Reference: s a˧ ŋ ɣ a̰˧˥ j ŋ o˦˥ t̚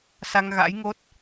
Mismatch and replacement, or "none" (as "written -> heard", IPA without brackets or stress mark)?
none